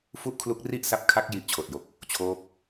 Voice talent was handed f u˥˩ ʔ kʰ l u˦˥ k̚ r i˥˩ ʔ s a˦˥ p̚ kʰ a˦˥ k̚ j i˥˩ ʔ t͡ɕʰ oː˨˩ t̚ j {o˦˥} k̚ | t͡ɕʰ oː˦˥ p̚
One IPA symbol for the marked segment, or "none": o˨˩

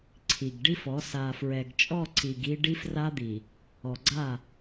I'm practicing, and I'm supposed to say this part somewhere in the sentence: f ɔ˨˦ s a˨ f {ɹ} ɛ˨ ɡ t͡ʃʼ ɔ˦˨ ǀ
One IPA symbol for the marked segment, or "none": ɹ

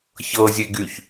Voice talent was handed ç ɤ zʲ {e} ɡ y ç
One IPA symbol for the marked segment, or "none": e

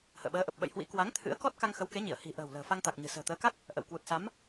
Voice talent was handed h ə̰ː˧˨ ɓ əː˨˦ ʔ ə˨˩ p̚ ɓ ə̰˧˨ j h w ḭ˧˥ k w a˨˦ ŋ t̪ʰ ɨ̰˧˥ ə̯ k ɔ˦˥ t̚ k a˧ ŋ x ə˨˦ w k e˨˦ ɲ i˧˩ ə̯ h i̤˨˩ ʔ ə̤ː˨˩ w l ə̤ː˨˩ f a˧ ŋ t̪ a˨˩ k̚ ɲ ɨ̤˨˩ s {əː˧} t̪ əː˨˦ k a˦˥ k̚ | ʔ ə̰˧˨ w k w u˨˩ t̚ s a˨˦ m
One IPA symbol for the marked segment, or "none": ə̤ː˨˩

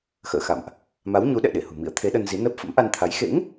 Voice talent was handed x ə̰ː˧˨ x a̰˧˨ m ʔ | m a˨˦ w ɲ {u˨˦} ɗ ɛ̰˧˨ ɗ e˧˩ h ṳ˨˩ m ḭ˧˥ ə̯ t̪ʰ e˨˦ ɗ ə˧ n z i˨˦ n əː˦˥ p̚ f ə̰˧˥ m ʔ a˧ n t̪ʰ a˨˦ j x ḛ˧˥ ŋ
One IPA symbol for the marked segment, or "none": u˨˦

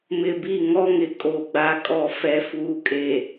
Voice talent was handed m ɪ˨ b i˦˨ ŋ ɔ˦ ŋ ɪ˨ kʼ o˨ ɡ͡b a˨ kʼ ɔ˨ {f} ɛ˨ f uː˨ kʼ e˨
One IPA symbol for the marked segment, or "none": f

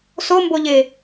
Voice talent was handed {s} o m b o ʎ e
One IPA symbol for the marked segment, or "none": s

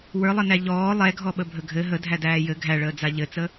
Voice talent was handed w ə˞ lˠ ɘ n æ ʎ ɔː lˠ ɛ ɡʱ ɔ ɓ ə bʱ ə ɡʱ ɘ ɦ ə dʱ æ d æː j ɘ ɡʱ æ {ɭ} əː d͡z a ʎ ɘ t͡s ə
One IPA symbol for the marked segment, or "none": ɭ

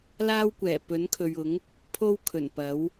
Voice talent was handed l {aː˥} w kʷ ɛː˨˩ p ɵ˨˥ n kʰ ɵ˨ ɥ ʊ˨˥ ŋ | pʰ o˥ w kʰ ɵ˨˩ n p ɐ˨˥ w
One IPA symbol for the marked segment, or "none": aː˥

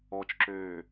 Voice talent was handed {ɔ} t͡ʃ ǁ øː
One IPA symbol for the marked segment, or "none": ɔ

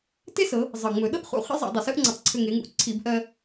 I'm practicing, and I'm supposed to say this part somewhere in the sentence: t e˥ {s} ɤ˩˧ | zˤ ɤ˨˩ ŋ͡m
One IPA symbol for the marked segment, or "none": s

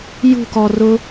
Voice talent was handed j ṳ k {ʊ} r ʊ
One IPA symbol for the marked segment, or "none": ɔ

